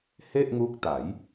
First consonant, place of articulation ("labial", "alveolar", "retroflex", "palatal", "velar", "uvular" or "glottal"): glottal